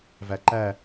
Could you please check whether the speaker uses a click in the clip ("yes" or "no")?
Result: yes